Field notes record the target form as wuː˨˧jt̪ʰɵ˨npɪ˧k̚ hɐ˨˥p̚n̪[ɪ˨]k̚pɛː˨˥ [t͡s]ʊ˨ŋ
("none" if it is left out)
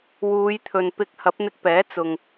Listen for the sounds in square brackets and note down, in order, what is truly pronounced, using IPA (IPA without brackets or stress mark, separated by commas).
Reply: ɪ˧, t͡s